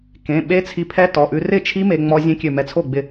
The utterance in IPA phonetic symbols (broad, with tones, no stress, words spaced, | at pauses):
kẽ˩˧˩ɓe˦˥ t͡sʰi˧pʰɛ˦˥tɔ˩˧˩ʔʉ˧ rɪ˥˩t͡ʃʰi˦˥ me˧ ŋ͡mɔ˧ zʲẽ˦˥kʲø˧˩mɛ˧ t͡sʰo˥˩ɡ͡bɪ˧˩